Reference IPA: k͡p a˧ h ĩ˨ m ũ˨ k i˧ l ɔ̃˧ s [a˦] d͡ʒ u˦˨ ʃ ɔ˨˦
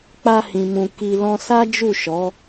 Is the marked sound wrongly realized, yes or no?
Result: no